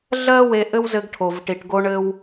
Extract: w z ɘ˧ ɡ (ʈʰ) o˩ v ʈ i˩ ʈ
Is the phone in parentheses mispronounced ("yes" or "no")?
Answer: no